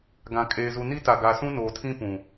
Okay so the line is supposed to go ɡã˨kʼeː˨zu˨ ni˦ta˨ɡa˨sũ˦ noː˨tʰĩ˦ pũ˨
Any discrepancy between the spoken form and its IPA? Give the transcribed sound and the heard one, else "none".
none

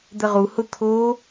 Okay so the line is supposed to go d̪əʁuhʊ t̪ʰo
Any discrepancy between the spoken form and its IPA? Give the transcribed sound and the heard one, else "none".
none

